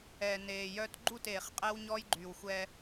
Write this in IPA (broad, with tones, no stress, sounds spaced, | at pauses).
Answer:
ɛ˨ n eː˨ j œ˦ t ɡ͡ǃ u˦˨ t eː˨ χ qʼ ɛ˦ w ɲ ɔ˦ j ɡ͡ǃ yː˨ w xʷ ɛ˦